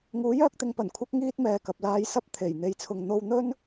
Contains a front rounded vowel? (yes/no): yes